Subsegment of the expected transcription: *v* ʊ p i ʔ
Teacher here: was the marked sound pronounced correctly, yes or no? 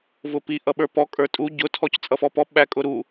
yes